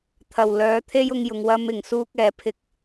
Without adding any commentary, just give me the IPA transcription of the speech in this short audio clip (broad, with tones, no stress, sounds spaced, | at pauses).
t̪ʰ ɐ˨˩ w l œː˨˧ t̪ʰ e˥ j ʊ˧ ŋ j ʊ˨ ŋ w ɐ˧ m ɪ˨˩ ŋ s uː˥ k̚ ɛː˨˥ pʰ ɪ˧ k̚